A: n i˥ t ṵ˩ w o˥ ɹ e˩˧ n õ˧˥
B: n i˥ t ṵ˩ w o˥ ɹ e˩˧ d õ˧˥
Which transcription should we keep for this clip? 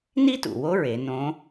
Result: A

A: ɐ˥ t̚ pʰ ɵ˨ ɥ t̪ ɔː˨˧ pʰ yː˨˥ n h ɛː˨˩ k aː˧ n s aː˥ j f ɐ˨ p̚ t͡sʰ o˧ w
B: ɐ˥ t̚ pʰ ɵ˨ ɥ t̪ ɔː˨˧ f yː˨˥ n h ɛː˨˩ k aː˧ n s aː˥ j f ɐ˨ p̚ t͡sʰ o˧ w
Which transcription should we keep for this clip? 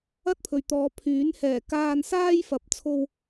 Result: A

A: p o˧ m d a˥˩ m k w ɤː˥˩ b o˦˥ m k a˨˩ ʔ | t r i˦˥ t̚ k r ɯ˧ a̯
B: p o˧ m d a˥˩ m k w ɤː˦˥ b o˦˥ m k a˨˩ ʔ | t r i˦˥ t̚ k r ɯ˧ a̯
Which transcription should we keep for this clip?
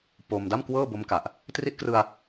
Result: A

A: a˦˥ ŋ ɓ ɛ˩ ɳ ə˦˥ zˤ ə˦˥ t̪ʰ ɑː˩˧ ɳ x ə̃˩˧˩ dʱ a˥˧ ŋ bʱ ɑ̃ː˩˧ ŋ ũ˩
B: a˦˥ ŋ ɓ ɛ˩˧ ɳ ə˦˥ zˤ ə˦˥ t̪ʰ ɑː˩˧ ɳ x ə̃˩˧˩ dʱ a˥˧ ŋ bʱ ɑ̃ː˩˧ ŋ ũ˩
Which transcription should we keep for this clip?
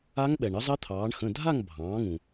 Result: A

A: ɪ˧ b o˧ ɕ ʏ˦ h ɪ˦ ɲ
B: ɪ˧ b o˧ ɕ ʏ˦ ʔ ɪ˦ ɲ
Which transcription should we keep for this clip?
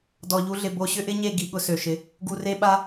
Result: B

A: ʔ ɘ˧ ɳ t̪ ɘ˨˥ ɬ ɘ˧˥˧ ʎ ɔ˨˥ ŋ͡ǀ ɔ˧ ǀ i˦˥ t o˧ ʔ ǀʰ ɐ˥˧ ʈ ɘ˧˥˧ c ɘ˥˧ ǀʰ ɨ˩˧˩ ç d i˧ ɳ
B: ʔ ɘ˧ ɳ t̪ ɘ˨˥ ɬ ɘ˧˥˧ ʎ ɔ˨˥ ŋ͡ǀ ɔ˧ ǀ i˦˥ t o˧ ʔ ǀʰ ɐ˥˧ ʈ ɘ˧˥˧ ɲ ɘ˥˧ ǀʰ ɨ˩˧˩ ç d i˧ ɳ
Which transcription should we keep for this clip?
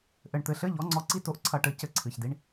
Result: A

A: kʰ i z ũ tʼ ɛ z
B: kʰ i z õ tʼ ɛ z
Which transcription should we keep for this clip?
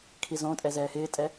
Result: B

